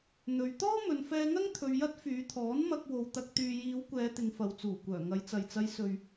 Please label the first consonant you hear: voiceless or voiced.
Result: voiced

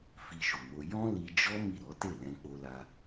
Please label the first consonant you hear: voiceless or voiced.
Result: voiceless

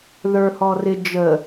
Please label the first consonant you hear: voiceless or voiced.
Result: voiced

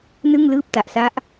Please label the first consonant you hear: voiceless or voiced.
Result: voiced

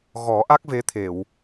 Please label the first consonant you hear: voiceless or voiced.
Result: voiced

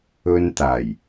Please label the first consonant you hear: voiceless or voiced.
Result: voiced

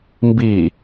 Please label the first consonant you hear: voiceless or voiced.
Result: voiced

